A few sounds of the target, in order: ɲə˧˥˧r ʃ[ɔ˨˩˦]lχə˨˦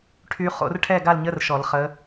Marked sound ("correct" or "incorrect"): correct